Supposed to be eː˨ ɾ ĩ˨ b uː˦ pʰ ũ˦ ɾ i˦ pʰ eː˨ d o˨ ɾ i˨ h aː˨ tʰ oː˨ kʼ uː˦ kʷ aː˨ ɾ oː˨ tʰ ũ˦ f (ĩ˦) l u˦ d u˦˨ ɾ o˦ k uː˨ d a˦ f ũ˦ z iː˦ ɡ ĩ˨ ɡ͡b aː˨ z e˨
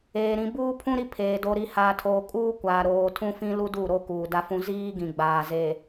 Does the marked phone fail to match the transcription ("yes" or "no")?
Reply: no